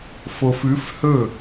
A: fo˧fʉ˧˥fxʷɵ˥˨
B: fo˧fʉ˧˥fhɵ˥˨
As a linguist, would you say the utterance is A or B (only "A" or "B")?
B